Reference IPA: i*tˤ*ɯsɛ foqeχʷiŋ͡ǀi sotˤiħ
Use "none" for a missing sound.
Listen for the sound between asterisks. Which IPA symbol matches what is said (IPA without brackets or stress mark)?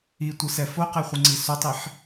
tʷ